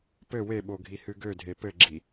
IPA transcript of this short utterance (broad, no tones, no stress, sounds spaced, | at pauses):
p ɘ w e ɓ o ɡʱ i h ɨ ɡ ø dʱ e p ɘ ɡ͡ǁ i